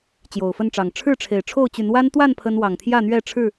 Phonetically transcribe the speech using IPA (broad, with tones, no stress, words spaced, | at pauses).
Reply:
t͡ɕjo˨˩ʊ̯fə˥˨nʈ͡ʂɑ˨˩ŋ ʈ͡ʂʰɻ̩˥˨ʈ͡ʂʰe˨˩ɪ̯ʈ͡ʂʰo˥˨ʊ̯t͡ɕy˨˦n wa˦nt̪wa˥˨n pʰə˦n wɑ˨˩ŋt̪ʰjä˥˨n̪ɥɛ˥˨ʈ͡ʂʰɻ̩˥˨